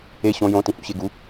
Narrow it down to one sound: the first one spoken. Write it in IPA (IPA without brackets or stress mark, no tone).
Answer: e